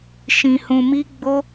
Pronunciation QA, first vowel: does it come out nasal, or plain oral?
nasal